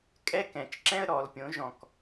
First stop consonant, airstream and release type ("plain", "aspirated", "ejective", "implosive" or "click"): ejective